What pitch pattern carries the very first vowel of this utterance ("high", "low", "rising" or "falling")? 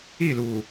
falling